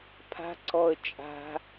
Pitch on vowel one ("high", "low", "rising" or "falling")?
high